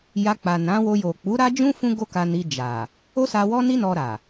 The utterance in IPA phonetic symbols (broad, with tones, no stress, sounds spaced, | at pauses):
j a˧ k͡p a˨ n ã˨˦ w o˧ j o˨ k͡p u˨˦ ɾ a˦ d͡ʒ ũ˦ f ũ˦ ɡ o˦ k a˧ n i˧ d͡ʒ a˨ | o˦ s a˧ w ɔ˦ n i˦ n ɔ˧ ɾ a˨